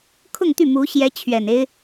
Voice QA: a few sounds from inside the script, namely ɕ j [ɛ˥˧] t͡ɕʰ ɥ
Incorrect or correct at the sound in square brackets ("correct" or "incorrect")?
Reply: incorrect